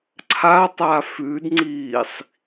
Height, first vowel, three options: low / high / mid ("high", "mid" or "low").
low